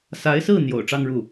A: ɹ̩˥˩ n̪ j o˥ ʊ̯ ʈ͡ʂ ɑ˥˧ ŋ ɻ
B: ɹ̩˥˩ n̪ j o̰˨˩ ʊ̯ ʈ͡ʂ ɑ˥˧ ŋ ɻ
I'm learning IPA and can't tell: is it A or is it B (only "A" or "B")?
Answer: B